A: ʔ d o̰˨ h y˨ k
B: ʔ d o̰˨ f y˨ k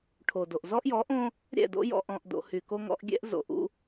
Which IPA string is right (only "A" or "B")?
A